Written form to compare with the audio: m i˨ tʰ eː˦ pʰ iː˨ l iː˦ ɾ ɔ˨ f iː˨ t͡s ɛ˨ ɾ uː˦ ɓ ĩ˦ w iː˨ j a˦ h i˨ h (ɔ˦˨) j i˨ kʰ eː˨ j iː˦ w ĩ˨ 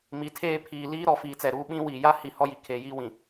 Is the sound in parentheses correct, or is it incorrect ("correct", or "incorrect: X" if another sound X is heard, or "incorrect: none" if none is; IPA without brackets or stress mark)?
incorrect: ɔ˦